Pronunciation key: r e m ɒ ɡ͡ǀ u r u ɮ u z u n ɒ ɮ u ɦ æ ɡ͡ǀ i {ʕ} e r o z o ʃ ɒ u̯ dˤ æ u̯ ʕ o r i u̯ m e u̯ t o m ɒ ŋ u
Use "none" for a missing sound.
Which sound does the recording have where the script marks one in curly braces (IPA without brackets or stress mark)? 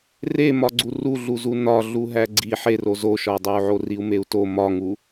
ħ